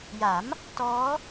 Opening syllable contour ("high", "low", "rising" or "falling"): rising